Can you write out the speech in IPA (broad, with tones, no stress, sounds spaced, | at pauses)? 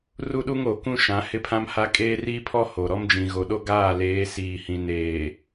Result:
r u˦ ɗ u˦ ŋ o˨ k ũ˦ ʃ ã˨˦ h ɪ˦ pʰ ã˦ m h a˦ kʼ eː˦ r iː˦ pʰ ɔ˦ h o˨ ɾ ɔ˦ m d͡ʒ ĩ˨ ɣ o˨ ɗ o˦ ɡ aː˦˨ l eː˨˦ s iː˨ h ĩ˨ n eː˨